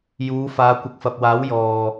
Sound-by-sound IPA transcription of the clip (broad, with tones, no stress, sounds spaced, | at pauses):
j uː˨˧ f aː˨˧ kʷ ɪ˨ k̚ f ɐ˨ p̚ w aː˨˥ w j ɔː˨